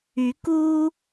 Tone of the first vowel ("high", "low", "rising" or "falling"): rising